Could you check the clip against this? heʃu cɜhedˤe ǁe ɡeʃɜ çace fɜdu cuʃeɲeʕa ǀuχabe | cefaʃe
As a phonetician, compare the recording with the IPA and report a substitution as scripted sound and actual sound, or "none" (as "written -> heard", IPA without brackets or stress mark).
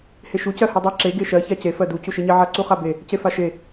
none